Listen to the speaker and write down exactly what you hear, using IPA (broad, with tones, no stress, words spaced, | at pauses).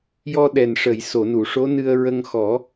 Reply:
jɔ˧ɗɛ˨˩n ʂə˨˩˨j so˨˩˨nu˨˩˨ʂo˧˥ nɨ˧ə̯ɹə˧ŋxɔ˨˩˦